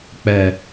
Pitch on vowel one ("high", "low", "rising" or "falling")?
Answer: low